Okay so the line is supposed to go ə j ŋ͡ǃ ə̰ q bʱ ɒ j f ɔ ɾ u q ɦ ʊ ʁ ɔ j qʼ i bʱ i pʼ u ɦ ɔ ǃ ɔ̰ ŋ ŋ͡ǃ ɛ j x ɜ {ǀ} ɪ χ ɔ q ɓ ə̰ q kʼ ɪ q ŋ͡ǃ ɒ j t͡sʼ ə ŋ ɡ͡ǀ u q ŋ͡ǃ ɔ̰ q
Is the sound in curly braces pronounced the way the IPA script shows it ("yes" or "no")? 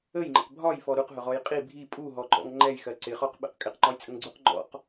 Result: yes